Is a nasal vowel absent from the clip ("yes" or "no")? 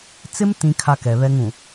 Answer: no